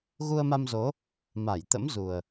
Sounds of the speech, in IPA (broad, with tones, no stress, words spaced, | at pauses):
ɣu˧ə̯ma˧mzo˨˦ | ma˧˩jt̪ə̰˧˥mzu˨˩ə̯